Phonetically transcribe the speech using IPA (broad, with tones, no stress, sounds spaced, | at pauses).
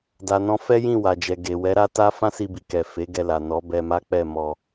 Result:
d a˨ n ɔ̃˧ f ɛ˦ j ĩ˦˨ w a˨ d͡ʒ ɛ˨ ɡ e˨ w ɛ˨˦ ɾ a˦ t a˦ f ã˦ s i˧ b i˨ k ɛ˨ f e˨˦ ɡ ɛ˧ l a˨ n ɔ˨˦ b ɛ˧ m a˦ k͡p ɛ˦˨ m ɔ˧